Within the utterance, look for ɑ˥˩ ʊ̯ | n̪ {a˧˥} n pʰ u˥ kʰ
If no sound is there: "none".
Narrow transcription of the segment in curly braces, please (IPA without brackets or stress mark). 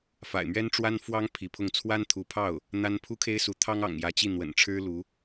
a˥